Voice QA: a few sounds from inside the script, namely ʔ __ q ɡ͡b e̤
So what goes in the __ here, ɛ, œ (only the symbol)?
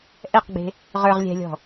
ɛ